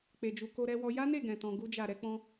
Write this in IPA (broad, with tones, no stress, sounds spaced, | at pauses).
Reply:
k͡p e˧ d͡ʒ u˧ k o˧ ɾ ɛ˧ w ɔ˧ j a˦ n e˦˨ ɡ ɛ̃˨ t ɔ̃˧ ɡ u˦ d͡ʒ a˦˨ ɾ ɛ˧ k͡p ɔ̃˧